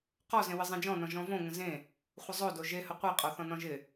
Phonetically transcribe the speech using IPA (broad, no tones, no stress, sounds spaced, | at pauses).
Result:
q ɔ z ẽ w ɪ zˤ ẽ d͡ʒ ɔ̃ n ɔ̃ ʒ ɔ̃ v õ ŋ ə̃ z ẽ | χʷ ə zˤ o d o ʒ e h ə qʷ e qʼ ɔ θ ɔ̃ n ɔ̃ ʒ ɪ